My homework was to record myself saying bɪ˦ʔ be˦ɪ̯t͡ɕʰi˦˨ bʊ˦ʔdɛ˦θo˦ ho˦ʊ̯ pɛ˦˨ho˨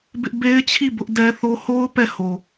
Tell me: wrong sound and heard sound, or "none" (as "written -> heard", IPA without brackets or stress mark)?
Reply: none